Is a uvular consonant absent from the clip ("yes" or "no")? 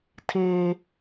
yes